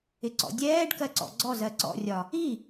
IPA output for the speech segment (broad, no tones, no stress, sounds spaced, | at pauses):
ɪ ǀ ɔ̰ dʲ ɛː ɖ k ɜ ǀ ɔ̰ ɡ͡ǀ ɔ z ɜ ǀ ɔ̰ rʲ ɒ | i